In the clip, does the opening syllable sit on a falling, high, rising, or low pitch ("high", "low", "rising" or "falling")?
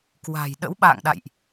low